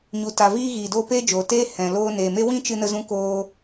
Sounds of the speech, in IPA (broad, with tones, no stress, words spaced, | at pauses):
ɲu˨ta˨viː˧ ɣiː˨doː˧ peː˦d͡ʒoː˨teː˦ hɛ̃˨loː˧neː˨me˦ wĩ˦t͡ʃɨ˧nə˧zũ˧ koː˧